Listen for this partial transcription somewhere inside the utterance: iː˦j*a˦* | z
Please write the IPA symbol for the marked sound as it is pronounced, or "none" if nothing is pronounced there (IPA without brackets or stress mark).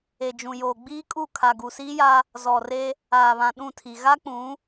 a˦